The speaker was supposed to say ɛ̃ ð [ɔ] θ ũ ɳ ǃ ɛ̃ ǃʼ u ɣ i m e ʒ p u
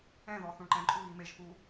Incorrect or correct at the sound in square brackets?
correct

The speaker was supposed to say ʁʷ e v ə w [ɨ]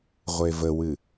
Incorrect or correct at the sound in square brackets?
correct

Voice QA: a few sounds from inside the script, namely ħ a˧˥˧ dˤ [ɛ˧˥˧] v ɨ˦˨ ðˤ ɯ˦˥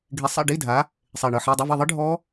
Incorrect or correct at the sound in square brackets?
correct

